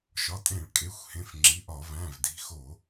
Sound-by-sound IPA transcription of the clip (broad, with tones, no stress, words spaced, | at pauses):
ʃɒ˩˧˩tʼẽ˧˩˧ɭkʼe˩˧˩xʷhẽ˩˧˩f ŋ͡ǁi˩˧˩ʔɒ˧˩˧væ̃˩˧˩v di̤˩˧˩xo˧˩˧